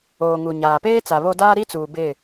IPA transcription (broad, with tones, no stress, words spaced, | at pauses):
oː˨ ŋu˨ɲaː˨ peː˦t͡sa˨ βo˦ daː˦ɾi˦t͡suː˨ bɪ˦˨